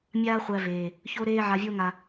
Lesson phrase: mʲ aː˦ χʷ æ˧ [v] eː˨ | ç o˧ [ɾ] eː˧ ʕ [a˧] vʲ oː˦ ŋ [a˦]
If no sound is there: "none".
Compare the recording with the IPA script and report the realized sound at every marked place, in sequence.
v, ɾ, a˧, a˧

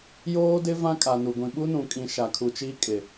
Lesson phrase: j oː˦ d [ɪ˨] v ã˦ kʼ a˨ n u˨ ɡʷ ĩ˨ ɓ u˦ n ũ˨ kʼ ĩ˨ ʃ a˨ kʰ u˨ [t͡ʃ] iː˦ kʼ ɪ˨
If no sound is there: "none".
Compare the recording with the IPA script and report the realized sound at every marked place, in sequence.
ɪ˦, t͡ʃ

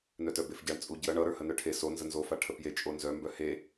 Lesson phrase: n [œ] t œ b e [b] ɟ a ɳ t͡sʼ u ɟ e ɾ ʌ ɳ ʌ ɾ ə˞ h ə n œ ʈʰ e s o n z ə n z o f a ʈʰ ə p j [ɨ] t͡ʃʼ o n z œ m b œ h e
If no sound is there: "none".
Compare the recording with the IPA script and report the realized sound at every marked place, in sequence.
œ, f, e

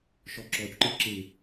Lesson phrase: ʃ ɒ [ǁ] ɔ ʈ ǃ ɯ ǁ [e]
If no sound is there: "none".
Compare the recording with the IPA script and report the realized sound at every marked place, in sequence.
ǁ, e

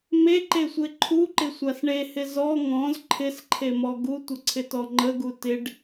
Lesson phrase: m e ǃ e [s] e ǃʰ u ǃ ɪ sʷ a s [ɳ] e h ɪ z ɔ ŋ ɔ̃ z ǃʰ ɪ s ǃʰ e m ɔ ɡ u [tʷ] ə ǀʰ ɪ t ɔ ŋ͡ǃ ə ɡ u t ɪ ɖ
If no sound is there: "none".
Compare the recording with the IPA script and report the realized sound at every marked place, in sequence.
sʷ, ɳ, tʷ

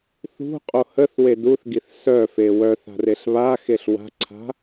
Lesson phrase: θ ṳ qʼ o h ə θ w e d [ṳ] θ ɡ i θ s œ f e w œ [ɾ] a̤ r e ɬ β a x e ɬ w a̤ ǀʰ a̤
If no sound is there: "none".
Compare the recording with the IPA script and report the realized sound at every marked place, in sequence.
u, θ

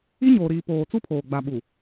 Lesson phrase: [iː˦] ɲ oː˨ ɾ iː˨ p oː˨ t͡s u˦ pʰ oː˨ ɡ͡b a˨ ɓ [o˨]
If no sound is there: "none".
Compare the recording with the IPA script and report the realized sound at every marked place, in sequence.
i˦, u˨

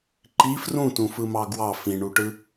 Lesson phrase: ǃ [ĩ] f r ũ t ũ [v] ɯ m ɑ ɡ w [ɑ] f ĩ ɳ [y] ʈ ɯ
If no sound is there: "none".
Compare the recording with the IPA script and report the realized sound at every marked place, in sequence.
i, f, ɑ, u

